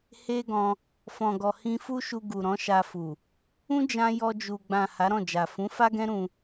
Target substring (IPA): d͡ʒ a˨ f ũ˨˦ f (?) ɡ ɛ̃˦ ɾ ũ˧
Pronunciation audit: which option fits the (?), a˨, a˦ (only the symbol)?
a˦